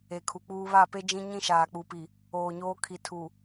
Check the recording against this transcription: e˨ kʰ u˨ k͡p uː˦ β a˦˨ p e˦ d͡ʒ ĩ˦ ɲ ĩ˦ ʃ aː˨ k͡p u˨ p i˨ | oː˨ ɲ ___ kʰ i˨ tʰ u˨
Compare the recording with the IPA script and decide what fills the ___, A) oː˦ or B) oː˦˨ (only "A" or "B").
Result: A